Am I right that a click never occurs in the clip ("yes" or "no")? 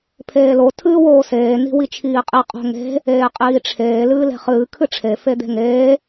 yes